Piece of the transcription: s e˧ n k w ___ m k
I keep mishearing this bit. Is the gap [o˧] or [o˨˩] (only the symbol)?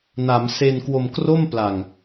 o˧